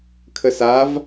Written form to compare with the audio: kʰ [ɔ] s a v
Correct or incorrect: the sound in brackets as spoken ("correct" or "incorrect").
incorrect